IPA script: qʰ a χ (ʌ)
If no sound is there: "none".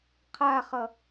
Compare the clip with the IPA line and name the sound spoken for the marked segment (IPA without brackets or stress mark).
ʌ